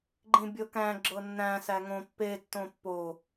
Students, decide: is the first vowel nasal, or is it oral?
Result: nasal